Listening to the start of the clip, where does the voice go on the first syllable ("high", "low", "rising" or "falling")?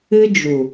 high